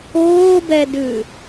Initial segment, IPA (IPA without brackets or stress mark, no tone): oː